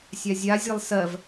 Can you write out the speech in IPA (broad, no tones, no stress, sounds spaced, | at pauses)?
sʲ a zʲ a zʲ e lˠ s ɜ v